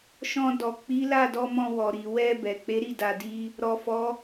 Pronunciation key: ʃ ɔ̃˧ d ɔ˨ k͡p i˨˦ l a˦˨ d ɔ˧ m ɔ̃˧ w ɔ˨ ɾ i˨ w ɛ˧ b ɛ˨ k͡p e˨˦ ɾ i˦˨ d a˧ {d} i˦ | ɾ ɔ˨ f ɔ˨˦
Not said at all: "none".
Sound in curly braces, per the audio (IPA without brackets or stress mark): d